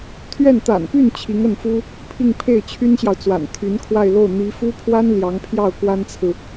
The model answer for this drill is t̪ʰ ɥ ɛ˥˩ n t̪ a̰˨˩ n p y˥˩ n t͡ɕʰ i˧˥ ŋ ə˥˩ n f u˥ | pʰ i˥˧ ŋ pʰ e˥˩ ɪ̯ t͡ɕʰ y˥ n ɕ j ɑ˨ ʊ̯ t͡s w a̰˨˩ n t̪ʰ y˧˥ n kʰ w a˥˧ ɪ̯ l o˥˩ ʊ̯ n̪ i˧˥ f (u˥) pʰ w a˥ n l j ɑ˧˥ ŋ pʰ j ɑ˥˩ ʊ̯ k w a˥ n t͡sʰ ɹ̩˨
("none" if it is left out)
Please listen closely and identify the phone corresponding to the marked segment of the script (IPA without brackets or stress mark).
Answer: u˥